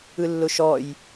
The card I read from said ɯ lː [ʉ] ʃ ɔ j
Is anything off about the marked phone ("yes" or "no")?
yes